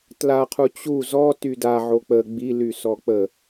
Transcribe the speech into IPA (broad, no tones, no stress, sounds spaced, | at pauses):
t l a qʰ u t͡ɕ u z ɔ t y d a ʕ o k͡p ə ɡ͡b i l y s ɔ k͡p ə